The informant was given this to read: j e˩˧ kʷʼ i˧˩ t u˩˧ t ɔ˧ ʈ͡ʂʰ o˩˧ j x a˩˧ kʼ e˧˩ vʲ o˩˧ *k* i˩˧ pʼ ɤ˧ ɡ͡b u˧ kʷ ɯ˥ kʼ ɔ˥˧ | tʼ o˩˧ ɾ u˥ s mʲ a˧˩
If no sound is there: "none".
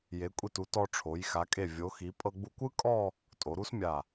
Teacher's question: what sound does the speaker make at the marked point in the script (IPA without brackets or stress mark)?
x